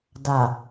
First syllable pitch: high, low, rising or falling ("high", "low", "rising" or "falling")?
low